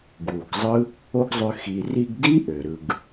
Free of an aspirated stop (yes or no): yes